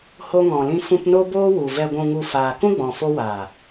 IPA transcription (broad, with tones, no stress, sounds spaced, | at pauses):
h o˧ ŋ ɔ̃˨ l ĩ˧ f ũ˧ p n o˦ b oː˦ w u˨ v ɛ˨ ɡʷ ũ˨ ŋ u˨ f aː˨ k ũ˦ ɡ͡b ɔ̃˨ f o˧ w aː˨